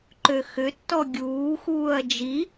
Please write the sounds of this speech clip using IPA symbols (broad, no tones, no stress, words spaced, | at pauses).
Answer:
ǃøxʏtːɔ ɡʲuːxuːɐ̯ d͡ʒi